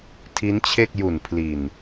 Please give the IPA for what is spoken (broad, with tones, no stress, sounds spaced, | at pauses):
tʰ i˦˥ n t͡ɕʰ e˥˩ k̚ j u˨˩ n pʰ l i˨˩ n